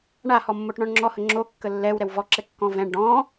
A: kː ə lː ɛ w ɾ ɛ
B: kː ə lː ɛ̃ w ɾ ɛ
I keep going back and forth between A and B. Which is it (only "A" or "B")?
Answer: A